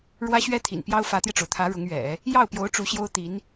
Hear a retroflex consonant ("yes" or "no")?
yes